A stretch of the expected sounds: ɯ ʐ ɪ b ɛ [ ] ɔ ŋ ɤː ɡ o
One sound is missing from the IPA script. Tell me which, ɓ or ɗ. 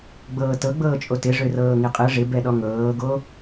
ɗ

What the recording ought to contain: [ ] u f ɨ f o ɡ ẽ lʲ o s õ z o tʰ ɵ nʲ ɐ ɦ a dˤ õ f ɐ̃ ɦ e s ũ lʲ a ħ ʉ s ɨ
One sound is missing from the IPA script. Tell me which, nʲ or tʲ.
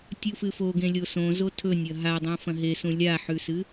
tʲ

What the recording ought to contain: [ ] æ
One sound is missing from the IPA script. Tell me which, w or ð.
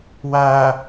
w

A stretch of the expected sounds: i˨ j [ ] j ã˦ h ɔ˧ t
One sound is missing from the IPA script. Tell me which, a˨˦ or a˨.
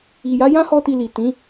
a˨˦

